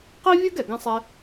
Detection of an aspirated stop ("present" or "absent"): absent